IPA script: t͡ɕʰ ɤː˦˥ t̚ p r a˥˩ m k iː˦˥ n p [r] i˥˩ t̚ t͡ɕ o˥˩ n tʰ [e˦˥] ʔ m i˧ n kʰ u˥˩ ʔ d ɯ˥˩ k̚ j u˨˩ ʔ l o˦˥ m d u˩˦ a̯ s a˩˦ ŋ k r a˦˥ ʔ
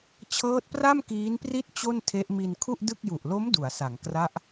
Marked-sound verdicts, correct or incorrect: correct, correct

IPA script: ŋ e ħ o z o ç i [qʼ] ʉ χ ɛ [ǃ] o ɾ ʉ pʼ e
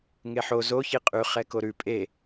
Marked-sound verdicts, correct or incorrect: correct, incorrect

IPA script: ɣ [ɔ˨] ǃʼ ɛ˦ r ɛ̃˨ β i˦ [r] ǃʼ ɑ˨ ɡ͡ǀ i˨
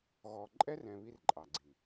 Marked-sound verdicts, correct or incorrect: correct, correct

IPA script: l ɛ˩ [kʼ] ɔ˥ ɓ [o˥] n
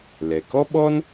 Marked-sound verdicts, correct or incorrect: incorrect, incorrect

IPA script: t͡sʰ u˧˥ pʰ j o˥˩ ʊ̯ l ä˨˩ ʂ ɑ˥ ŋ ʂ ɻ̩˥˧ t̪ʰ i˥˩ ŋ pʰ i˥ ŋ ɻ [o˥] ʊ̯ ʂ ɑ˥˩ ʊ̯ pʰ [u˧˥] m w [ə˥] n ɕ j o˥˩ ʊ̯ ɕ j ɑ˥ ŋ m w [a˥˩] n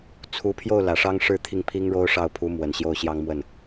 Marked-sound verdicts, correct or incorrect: correct, correct, incorrect, incorrect

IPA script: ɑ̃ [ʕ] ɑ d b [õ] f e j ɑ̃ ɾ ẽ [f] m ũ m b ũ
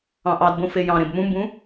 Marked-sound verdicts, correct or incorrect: incorrect, correct, incorrect

